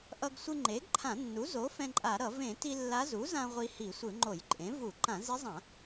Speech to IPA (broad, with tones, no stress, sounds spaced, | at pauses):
ʔ ʌ˧ ɡ sʷ ɯ˧ ŋ͡ǃ e˩˥ ɡ ǃʰ ã˧˩˧ nː u˩˥ z o˩˥ f ɛ̃˧ ǃʼ a˧˩˧ ɾ ʌ˧˩˧ v ẽ˧˩˧ t i˧ lː a˧˥ z u˩˥ z ã˧ ʁʷ i˧ h i˧˩˧ sʷ ɯ˧˩˧ ŋ͡ǃ o˧˩˧ j ǃʼ ẽ˩˥ v u˧˩˧ ǃ ã˧˩˧ z i˧˥ zˤ ã˧˩˧